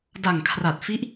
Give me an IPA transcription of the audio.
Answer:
d a˨˩ ŋ kʰ r a˨˩ t̚ f i˦˥ ʔ

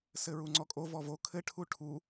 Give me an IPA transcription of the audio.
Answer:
s ɘ ɹ u ŋ͡ǀ ɔ kʼ o v ɔ v o kʰ ɘ ʈʰ u ʈʰ u

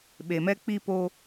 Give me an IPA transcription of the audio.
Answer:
ɓ e˨ m ɛ˦ k͡p i˦ p oː˦

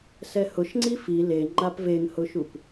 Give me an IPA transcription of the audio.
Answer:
s ɛ h ʊ ʃ ŋ͡ǀ i f i l e ŋ͡ǃ a p v e ŋ h ʊ ʃ u p

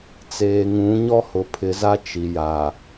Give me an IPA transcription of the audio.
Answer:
t͡s eː˨ ŋ ũ˨˦ ɲ ɔ˦ h ʊ˨ pʰ ɪ˨˦ z a˦ t͡ʃ i˨ j a˨

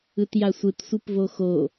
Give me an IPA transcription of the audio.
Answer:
ɯ t j a sʷ ɯ t sʷ ɯ p v o x o

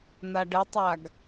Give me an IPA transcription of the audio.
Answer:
n̪ a ɖ ə tˤ a ɡ

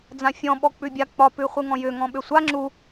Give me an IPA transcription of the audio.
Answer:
d͡z ã fʲ ɔ̃ ɓ ɔ k͡p ʉ bʲ a k͡p ɒ p ʉ χʷ ɯ ŋ ɔ̃ j ʏ ŋ ɔ̃ ɓ ʏ sʷ a ŋ͡ǁ u

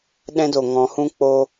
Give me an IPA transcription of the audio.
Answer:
ɗ ɛ̃˦ d o˨ ŋ ɔ̃˨˦ h ũ˦ k͡p o˧

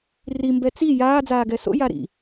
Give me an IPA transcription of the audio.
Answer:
r i m b ɛ t͡s i j aː d͡z aː ɡ ɛ s o̰ j a ɾ ḭ

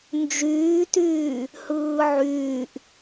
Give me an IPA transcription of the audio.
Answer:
n d͡ʒ yː t yː | h ɯː ʕ yː ʔ

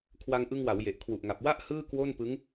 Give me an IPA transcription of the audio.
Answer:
kʰ w a˧ ŋ ʔ ɯ˧ ŋ w a˩˦ w j e˨˩ ʔ kʰ w u˨˩ ʔ ŋ a˨˩ p̚ w a˥˩ ʔ h ɯː˥˩ k w o˥˩ n p ɯ˦˥ ŋ

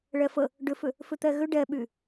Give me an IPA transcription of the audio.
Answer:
ɭ ɛ f ə | ɖ ʏ f ʏ | f ʏ t̪ ɛ ɣ ʏ ɖ ɛ ɓ y

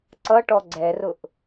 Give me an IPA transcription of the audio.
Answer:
ǀ ʌ ʈ ɔ ɡ͡ǀ ɛ r ʊ ʔ

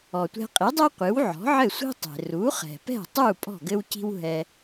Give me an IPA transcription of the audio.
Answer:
ɔ˩ tʷ ɛ̤˧ qʼ i˩˥ dˤ ɛ˥ qʷ ɨ˩˥ w ʕ ɔ̤˩˥ ʕ ɘ˥˩ sʷ i̤˥ tˤ e̤˩ r u˩˥ χ ɛ̤˩ p ɛ̤˥˩ tˤ u˥˩ pʼ ɔ̤˥˩ ɡ ɘ˥ w c i̤˥ w ɦ ɛ˧

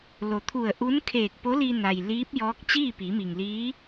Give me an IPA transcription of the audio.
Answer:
l o˩˧ t̪ʰ u˧˩ ə̯ ʔ u˧˥ n kʰ eː˧˩ k̚ p o˧˥ l i˧ n a˩ j l iː˧˥ p̚ j ɔː˧˥ k̚ t͡ɕ iː˥˨ p iː˩˧ m i˩ ŋ l iː˧˥

